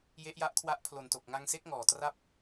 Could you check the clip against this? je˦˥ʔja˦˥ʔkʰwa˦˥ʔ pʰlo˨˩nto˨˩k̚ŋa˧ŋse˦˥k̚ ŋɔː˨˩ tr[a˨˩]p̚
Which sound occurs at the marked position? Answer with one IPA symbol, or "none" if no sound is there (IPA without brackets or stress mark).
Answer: a˥˩